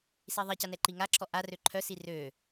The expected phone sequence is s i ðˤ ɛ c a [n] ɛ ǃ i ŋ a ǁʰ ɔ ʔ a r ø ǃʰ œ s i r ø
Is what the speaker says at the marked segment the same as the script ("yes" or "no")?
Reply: yes